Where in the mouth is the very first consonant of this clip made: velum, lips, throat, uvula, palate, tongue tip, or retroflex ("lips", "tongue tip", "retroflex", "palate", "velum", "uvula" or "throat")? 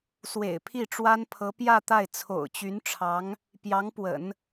tongue tip